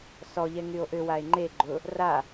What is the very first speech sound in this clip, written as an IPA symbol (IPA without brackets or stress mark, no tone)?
s